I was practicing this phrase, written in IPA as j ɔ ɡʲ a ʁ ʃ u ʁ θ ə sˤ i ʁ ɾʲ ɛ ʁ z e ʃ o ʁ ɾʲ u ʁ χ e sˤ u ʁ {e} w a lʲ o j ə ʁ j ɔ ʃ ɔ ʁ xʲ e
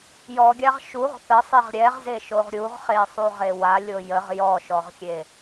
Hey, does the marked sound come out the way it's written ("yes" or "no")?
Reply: yes